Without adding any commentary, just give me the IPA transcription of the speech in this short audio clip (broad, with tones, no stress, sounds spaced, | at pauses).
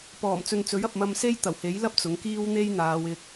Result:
p ɔː˨˩ m t͡s ɵ˧ n t͡s ɵ˨˥ ɥ ɐ˨ p̚ m ɐ˧ m s e˥ j t̪ ɐ˨˩ w h e˨˥ j l ɐ˥ p̚ t͡s ʊ˨˥ ŋ k iː˥ w n̪ e˥ j n̪ aː˨˧ w ɪ˧ k̚